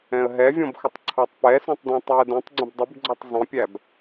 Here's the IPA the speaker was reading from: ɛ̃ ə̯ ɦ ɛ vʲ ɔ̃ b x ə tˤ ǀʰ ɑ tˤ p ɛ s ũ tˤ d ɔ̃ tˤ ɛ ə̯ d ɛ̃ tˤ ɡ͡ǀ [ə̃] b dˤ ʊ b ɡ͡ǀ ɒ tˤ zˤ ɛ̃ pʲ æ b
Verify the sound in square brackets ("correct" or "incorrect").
correct